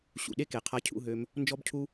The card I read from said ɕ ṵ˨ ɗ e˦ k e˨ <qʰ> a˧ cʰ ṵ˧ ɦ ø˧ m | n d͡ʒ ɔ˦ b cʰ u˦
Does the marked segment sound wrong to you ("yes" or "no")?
no